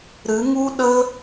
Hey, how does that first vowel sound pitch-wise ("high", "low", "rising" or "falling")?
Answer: rising